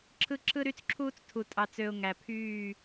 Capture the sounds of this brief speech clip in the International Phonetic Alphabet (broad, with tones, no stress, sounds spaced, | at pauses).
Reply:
ǁʰ ɯ˦ ǁʰ ɯ˦ ɾ y˦ t͡s ǁʰ uː˦ t͡s tʰ u˨ tʼ ɑ˨ t͡s ø˨ ʊ̯ ŋ æ˨ pʰ yː˦˨